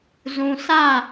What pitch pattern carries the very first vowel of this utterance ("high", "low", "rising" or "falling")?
low